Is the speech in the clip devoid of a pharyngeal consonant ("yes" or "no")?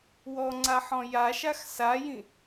no